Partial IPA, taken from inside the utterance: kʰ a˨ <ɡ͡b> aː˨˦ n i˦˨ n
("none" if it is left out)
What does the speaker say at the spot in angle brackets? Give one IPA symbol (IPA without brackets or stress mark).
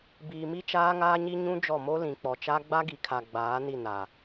ɡ͡b